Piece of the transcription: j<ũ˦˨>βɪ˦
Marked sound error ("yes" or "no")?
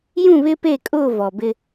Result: no